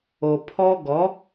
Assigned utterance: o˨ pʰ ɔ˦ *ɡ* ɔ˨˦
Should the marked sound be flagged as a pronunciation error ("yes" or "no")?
no